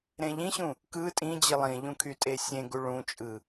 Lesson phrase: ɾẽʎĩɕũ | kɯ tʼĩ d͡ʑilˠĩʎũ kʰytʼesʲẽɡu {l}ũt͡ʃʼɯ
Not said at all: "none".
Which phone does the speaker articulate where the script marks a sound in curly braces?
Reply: ɭ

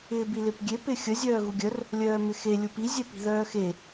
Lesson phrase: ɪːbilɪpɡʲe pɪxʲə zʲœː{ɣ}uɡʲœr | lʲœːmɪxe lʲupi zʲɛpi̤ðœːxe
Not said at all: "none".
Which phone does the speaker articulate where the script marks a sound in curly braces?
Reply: ɣ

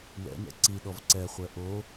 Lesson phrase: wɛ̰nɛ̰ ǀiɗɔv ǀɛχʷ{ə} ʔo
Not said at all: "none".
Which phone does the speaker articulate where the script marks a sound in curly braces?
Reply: ɛ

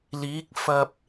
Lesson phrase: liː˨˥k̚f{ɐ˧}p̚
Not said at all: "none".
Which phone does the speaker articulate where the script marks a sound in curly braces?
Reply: ɐ˧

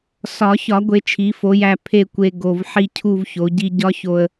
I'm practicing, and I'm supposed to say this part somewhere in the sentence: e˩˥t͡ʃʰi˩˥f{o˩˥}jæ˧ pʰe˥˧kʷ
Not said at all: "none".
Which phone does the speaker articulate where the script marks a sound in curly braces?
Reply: o˩˥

